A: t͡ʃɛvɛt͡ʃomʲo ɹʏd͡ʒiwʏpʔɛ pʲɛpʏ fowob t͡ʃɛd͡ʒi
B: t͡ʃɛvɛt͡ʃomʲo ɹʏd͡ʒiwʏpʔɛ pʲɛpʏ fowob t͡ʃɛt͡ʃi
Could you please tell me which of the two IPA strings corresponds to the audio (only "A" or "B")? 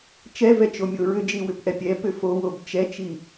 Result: B